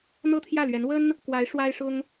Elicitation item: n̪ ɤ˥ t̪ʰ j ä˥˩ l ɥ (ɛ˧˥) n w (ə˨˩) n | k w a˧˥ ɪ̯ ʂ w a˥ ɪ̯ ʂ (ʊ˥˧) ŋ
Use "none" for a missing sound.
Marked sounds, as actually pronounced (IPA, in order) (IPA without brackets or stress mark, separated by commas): ɛ˧˥, ə˥, ʊ˥